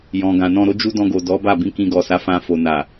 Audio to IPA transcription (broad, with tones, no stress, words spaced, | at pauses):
jɔ̃˨ɡã˨nɔ̃˧ ɾo˦d͡ʒu˦ dɔ̃˧ɡo˨dɔ˨˦ ba˦˨ bĩ˧kĩ˧ ɡɔ˨ sa˨˦fã˧ fo˨ na˨